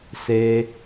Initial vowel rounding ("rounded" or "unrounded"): unrounded